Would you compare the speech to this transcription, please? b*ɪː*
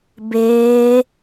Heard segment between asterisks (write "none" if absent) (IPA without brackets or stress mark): ɪː